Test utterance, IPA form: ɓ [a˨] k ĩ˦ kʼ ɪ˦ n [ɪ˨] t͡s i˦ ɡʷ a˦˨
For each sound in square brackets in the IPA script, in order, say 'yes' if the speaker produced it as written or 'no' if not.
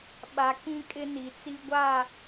yes, no

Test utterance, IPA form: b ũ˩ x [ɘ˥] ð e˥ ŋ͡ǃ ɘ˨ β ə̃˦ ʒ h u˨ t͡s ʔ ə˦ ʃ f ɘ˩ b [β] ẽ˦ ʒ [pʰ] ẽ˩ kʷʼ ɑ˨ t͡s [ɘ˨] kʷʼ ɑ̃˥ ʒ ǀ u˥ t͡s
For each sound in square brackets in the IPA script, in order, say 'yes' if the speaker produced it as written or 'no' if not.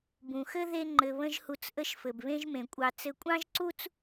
yes, yes, no, yes

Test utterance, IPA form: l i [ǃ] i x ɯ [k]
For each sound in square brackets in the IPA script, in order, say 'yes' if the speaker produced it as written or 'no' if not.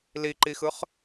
yes, no

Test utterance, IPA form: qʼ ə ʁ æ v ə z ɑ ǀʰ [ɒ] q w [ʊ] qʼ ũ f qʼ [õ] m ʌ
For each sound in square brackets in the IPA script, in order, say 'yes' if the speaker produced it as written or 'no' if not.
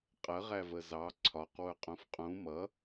yes, yes, no

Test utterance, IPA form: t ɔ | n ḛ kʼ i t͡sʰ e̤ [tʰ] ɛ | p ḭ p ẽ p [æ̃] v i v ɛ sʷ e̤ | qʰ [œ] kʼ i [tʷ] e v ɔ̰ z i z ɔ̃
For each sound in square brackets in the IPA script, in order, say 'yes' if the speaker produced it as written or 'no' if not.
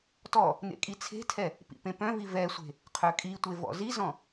yes, no, yes, yes

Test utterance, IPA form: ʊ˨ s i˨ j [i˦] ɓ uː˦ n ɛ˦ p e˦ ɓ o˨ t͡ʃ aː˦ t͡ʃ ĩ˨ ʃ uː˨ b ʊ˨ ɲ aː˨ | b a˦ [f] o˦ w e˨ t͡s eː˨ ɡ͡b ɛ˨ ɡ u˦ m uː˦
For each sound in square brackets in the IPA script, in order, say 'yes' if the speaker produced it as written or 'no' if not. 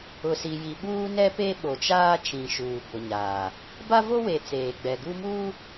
no, no

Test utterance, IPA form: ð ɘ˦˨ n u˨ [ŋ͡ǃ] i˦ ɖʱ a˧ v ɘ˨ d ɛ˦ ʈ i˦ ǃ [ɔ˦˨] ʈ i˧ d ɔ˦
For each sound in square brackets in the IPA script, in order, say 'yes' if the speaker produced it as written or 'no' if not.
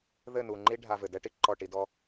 yes, yes

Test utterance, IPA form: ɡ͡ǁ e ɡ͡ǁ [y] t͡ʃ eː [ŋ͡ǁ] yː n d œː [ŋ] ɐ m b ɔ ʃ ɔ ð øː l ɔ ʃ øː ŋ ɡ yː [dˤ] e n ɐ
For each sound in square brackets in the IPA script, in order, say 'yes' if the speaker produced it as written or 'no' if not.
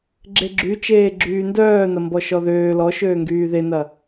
yes, no, no, no

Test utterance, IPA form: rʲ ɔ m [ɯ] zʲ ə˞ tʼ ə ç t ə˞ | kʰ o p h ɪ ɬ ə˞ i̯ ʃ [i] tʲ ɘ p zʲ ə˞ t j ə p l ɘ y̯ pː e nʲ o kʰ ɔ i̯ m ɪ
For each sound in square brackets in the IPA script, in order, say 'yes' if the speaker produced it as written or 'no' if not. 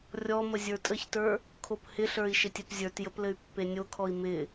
no, no

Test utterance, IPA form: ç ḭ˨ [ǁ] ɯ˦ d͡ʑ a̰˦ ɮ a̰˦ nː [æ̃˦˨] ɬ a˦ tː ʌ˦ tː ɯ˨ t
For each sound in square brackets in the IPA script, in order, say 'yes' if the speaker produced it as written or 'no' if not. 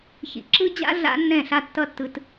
yes, no

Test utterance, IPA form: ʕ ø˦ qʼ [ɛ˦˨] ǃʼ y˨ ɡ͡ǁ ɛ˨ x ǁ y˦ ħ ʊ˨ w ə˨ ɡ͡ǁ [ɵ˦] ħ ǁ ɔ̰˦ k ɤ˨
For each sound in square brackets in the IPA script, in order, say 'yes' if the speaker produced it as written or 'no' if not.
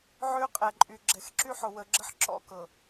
no, no

